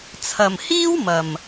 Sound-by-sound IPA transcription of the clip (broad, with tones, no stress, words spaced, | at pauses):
t͡sʰɐ˨mhiː˥wmɐ˨m